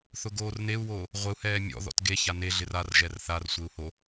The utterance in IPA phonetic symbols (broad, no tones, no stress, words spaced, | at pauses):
θʊɡoːrneu̯woː | ʁʷeu̯hɛː mʲɔ̰ ðɔ̰tɡeça neɮɪr arʒɛr θarsʷeu̯ ho